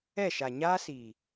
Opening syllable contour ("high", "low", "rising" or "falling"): falling